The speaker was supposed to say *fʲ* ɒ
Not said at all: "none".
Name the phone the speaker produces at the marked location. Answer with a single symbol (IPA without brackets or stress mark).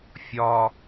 fʲ